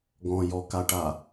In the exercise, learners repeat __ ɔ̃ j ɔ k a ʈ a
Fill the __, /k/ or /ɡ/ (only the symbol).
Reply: ɡ